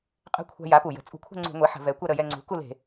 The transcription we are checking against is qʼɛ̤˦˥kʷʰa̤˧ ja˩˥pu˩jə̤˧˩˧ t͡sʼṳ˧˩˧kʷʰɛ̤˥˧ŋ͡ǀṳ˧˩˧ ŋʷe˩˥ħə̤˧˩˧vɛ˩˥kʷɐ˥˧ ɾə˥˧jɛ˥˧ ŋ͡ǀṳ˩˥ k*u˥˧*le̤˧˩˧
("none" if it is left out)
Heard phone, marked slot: u˥˧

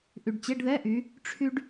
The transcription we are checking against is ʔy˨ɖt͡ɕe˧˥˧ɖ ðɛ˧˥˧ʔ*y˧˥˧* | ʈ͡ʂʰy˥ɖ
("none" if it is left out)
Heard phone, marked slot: y˨˦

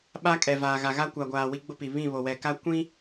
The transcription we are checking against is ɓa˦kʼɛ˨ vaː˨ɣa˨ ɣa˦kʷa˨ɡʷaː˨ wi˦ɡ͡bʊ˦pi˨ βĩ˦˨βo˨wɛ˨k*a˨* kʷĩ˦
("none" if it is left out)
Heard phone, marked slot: a˦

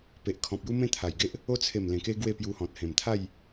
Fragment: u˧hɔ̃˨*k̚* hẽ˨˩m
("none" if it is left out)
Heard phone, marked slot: t̚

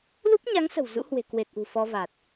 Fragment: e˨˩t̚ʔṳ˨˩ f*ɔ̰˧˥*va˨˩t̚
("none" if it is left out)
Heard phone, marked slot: ɔ˧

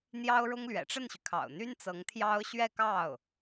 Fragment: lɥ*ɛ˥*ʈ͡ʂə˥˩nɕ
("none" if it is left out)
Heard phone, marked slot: ɛ̰˨˩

